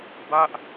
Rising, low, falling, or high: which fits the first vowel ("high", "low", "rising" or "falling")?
falling